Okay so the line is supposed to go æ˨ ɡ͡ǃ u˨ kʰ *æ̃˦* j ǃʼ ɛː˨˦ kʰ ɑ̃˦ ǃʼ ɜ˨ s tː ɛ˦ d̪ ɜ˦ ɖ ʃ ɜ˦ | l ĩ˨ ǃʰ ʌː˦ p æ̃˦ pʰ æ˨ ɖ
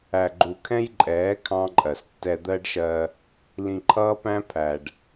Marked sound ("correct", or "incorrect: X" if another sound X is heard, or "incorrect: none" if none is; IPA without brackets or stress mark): incorrect: ɛ̃˦